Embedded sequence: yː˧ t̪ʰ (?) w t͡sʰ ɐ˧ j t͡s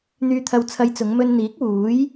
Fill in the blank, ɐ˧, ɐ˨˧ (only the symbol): ɐ˧